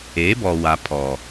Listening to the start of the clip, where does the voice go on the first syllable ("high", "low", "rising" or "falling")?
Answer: rising